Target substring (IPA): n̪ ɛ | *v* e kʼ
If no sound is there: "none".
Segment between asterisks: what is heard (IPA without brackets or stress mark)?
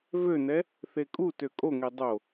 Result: θ